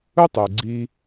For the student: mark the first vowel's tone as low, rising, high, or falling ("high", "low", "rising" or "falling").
high